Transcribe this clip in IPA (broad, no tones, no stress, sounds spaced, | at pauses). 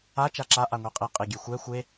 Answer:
a t͡ʃ a ǁ a ʔ a ŋʷ i qʼ i qʼ i ɡʲ e xʷ ɛ xʷ e